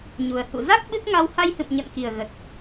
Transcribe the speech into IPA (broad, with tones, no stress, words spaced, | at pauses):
ɲu˨˩ə̯ hṵ˧˨za˦˥k̚ ɓɨ˦˥k̚ŋa˧w ha˧jhɨ̰˧˨mɲə̰˧˨nxi˨˩ə̯ ɣə˨˩t̚